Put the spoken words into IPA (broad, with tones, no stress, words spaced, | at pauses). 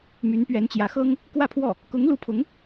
my˧˥npɥɛ˧˥nt͡ɕjä˧˥ xɤ˥ŋ | kwä˥˧pʰwɔ˥˩ | kʊ˧˥ŋlu˧˥pʰʊ˧˥ŋ